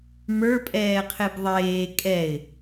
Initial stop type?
ejective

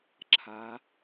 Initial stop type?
click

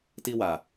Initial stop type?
plain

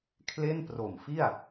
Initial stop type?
aspirated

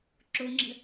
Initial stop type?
click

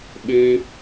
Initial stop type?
implosive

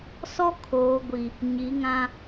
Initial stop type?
aspirated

